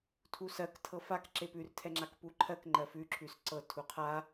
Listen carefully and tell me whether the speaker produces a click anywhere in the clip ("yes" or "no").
yes